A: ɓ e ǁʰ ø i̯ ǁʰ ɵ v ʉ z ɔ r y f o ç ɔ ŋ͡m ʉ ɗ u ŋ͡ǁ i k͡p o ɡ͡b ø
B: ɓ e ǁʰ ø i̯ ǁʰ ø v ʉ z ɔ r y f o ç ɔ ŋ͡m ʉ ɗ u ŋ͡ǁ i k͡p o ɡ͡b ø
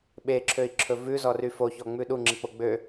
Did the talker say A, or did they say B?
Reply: A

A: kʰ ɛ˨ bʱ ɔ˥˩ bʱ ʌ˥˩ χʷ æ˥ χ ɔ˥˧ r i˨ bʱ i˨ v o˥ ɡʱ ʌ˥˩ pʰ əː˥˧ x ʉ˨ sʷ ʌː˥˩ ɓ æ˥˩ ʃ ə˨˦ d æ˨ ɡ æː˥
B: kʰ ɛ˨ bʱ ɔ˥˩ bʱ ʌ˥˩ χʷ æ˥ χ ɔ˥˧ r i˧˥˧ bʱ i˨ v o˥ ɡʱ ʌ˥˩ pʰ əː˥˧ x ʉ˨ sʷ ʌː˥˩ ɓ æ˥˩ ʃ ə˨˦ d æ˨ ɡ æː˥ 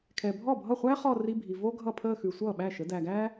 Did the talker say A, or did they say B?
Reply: B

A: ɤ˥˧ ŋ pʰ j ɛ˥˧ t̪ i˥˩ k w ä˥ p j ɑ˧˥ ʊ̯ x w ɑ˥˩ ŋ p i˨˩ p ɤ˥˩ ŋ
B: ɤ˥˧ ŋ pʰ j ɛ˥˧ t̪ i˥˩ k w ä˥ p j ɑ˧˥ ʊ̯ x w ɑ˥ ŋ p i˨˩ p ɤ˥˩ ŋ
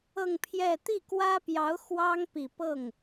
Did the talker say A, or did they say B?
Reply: B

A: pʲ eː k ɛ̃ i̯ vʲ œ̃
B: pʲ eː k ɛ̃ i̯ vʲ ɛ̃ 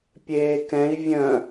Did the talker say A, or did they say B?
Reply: A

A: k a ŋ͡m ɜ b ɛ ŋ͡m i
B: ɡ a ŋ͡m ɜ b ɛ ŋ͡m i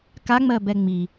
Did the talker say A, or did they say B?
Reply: A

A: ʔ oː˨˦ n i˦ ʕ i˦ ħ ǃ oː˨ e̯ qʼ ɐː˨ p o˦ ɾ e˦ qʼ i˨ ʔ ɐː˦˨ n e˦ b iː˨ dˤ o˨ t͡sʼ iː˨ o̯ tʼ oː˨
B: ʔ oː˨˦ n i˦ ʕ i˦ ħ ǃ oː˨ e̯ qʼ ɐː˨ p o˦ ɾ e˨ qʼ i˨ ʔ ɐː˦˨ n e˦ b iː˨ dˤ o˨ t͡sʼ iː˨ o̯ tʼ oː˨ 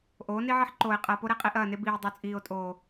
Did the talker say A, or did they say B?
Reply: A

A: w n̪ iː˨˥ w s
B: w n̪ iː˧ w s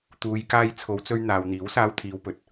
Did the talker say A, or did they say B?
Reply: A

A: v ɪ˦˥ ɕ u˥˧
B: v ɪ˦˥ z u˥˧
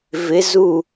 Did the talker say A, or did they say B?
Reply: B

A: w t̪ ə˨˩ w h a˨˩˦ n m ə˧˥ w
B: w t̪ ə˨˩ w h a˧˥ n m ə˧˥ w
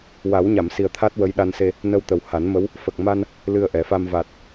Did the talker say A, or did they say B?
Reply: A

